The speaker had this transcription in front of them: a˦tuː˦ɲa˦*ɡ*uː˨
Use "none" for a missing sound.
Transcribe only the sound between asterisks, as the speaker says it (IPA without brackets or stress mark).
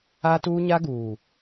ɡ